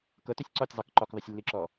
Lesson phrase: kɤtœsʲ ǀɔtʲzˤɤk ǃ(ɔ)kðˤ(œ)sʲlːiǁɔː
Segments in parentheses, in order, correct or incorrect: correct, correct

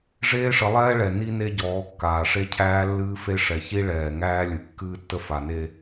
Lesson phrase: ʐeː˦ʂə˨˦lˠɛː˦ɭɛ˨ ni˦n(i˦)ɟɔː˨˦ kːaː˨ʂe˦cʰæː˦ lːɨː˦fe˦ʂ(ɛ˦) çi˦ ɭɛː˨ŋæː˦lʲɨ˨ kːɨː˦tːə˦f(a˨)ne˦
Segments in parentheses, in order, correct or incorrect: incorrect: e˦, incorrect: ɛ˨, correct

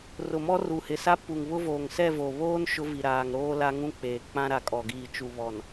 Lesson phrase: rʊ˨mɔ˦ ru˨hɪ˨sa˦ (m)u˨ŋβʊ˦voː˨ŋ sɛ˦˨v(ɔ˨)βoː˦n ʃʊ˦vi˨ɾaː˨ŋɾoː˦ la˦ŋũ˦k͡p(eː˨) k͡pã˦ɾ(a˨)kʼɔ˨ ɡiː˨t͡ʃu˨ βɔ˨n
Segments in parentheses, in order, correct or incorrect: incorrect: p, incorrect: o˨, correct, correct

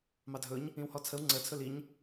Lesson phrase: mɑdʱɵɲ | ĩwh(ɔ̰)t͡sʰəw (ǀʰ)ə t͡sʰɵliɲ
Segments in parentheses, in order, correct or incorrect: incorrect: ɔ, incorrect: ŋ͡ǀ

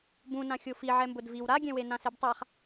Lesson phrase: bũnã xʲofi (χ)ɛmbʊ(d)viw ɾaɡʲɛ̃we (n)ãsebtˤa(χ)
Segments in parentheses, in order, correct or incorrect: incorrect: ʕ, correct, correct, correct

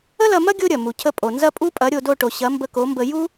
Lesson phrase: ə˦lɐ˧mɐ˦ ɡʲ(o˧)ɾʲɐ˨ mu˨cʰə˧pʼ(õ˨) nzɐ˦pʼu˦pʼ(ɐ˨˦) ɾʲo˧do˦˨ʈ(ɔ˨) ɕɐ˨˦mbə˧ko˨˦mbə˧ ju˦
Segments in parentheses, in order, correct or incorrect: incorrect: o˦, incorrect: o˨, correct, incorrect: o˨

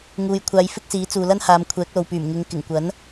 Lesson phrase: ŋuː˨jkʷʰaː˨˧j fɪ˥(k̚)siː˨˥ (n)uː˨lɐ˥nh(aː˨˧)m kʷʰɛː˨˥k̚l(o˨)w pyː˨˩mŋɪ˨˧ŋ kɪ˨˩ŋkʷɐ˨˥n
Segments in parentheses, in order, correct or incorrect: correct, incorrect: t͡s, correct, correct

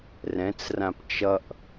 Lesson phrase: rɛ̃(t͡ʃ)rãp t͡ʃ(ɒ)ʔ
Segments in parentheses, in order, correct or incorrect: incorrect: t͡s, incorrect: ʌ

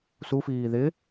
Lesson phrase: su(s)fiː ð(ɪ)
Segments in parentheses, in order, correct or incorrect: incorrect: none, correct

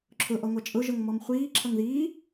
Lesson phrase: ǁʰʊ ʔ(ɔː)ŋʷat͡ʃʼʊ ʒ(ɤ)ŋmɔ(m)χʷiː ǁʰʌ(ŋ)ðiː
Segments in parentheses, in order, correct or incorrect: incorrect: ɔ, correct, correct, correct

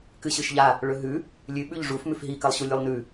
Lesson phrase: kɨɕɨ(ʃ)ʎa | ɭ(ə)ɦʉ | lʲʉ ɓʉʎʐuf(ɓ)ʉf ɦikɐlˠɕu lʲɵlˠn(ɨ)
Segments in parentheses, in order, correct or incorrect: correct, incorrect: ɵ, incorrect: m, incorrect: ʉ

